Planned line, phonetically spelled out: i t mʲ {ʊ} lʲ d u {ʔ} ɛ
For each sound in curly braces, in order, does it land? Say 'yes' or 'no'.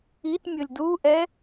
yes, yes

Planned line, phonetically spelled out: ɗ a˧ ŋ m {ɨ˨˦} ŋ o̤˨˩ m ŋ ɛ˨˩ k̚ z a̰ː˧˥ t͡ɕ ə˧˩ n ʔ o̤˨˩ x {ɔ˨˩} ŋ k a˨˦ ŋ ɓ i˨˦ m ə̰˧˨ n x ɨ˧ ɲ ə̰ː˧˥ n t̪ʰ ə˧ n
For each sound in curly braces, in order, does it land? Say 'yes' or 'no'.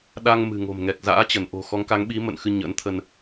no, no

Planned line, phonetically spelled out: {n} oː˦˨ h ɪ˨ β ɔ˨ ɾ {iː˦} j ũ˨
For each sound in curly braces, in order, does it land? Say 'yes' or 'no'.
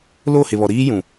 no, yes

